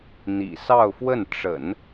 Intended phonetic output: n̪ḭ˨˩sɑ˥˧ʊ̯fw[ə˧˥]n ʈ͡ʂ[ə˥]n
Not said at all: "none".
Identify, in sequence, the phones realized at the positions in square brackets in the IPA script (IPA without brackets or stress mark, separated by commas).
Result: ə˥˩, ə̰˨˩˦